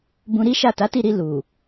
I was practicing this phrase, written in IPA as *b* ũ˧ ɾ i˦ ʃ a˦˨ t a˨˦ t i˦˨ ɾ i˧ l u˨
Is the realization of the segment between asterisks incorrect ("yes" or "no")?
no